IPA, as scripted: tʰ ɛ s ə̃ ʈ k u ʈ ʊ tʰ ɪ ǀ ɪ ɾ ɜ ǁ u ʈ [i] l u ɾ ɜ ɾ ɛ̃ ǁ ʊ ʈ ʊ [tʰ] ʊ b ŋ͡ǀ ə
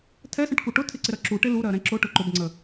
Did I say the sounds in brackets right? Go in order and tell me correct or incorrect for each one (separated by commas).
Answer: incorrect, incorrect